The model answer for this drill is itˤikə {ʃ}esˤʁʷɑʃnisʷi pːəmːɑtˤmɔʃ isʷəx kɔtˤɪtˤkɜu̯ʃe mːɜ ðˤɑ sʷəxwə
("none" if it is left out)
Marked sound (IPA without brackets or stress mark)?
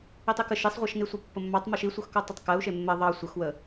ʃ